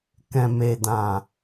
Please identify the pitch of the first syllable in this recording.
low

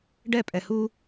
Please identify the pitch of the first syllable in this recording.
falling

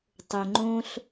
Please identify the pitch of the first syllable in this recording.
low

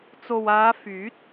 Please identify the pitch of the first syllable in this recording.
low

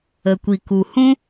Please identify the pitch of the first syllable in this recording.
low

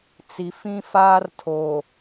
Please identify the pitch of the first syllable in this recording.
low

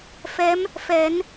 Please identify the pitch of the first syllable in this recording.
rising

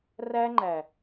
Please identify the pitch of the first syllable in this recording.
high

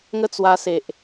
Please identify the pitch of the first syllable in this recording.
high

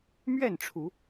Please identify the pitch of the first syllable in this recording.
falling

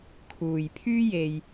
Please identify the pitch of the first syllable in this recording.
low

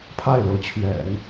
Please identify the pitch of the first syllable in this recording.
falling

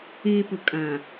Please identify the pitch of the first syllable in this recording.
low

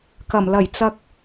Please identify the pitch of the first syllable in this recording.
low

